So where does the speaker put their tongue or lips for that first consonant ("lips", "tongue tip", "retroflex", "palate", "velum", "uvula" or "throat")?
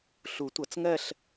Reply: tongue tip